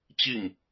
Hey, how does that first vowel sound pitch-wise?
falling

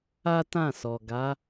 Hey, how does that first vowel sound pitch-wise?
high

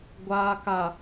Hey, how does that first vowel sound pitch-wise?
low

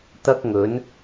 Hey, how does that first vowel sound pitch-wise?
high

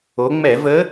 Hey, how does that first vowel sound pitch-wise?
rising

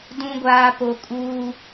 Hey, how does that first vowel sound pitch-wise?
low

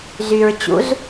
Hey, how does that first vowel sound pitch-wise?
low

